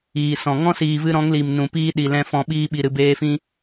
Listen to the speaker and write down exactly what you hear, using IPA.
iː˨ s ɔ̃˨ ŋ ɔ̃˦ s iː˨ v ɨ˧ ɾ ɔ̃˨˦ ŋ l i˨ m n ũ˨ p iː˦ ɗ i˨ l ɛ̃˧ f ɔ̃˨ ɓ iː˧ ɓ i˨ ɾ ɨ˨ b eː˧ f ĩ˧

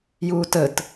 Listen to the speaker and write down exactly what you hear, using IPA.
j uː t ə t

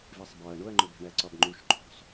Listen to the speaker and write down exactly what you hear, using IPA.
v i sˤ b ɒ ɐ̯ ɳ o ɐ̯ ŋ͡ǃ o b æ̤ ɳ æ ǀ ɒ b ŋ͡ǃ u ʃ ǃʰ o̤ sˤ

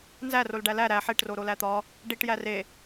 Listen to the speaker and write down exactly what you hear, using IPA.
n z æ r o l ɖ æ l æ ɾ æ ħ e ʈ r o ɾ o l æ t̪ ɒ | ɖ i ʈ j æ r e

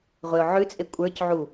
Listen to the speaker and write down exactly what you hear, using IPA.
ʁʷ e ʊ̯ ʕ ʉ t͡sʼ e kʷʼ ə˞ c ʕ u

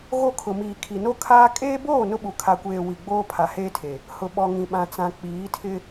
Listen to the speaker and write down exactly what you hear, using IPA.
ɣ o˦˨ kʰ ʊ˨ m iː˨ kʰ i˨ n o˦ kʰ aː˦ kʼ eː˦ b oː˦˨ n ʊ˦ ɓ u˨ kʰ a˨ kʷ eː˨ w i˨ ɡ͡b oː˦ pʰ a˨ h eː˦ tʰ e˨ | h ʊ˨ ɓ ɔ˨ ŋ ĩ˨ ɓ ã˨ t͡s ã˨ k͡p iː˨˦ tʰ ɪ˦

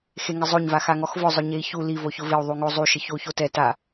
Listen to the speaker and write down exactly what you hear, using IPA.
x e ŋ ɪ zˤ o ɲ v a x a ŋ ɔ x v ʊ zˤ ʊ ɲ e i̯ ç u l i v o ç ʊ v ɪ u̯ ðˤ u ŋ o zˤ u ʃ ɪ ç o u̯ ç o t ɛ t a

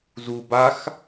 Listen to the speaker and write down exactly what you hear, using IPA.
z u b a x

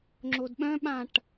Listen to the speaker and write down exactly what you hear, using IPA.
ŋ͡ǁ o d ɓ œ̃ ɓ ã ʈ

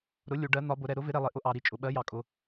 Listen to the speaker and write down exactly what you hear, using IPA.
ɾ ʊ˨˥ lʲ u˩˧ ɖ ɜ˨˥ n̪ ɒ˨˥ b ʊ˩˧ ɾ ɛ˩˧ ɾ ʊ˨˥ v ɪ˨˥ ɾ ɛ˩˧ lˠ ɪ˩˧ ʔ ʊ˨˥ ʔ ɑ˩˧ ɾ i˨˥ t͡ʃʼ ʊ˩˧ ɓ ɜ˨˥ j ɑ˩˧ kʼ ʊ˩˧

